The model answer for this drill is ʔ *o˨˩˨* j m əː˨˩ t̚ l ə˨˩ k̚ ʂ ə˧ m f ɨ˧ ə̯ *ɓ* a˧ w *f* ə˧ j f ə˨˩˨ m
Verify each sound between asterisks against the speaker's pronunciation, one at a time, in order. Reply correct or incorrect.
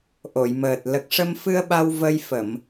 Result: correct, correct, incorrect: v

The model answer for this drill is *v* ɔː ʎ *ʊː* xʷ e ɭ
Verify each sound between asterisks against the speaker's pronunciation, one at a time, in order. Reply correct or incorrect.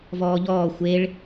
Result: correct, incorrect: ɔː

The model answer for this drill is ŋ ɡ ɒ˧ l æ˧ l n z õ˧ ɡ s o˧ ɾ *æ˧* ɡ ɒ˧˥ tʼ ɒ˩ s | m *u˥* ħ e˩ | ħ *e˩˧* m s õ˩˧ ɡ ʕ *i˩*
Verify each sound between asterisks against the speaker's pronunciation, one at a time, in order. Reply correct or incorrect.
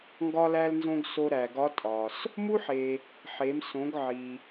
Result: incorrect: æ˩, correct, correct, correct

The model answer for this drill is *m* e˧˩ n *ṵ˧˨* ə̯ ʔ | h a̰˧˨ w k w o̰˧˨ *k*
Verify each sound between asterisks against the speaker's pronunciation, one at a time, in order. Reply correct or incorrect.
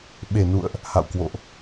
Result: incorrect: ɓ, correct, incorrect: ʔ

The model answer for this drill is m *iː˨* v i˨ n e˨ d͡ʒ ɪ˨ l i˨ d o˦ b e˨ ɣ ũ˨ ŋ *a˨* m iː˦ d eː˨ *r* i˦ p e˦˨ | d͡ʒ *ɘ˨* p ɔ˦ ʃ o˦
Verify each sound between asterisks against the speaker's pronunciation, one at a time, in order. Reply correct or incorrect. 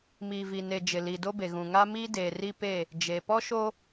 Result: correct, incorrect: a˦, correct, incorrect: e˨

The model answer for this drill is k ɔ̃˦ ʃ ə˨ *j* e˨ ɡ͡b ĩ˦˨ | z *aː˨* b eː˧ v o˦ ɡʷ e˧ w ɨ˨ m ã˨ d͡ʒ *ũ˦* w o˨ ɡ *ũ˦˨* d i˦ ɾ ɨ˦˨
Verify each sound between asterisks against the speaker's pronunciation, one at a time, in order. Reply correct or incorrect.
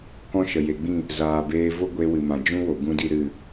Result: correct, correct, correct, incorrect: ũ˦

